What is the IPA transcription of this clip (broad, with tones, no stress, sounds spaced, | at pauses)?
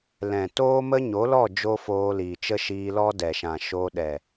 l ɛ̃˨ t oː˦ m ə˦ ɲ o˨˦ l ɔ˦˨ d͡ʒ o˦ f oː˧ l iː˨ t͡ʃ ə˦ ʃ iː˧ l ɔ˦ d ɛ˨ ʃ ã˨ ʃ o˧ ɗ ɛ˨